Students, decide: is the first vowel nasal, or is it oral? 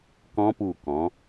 nasal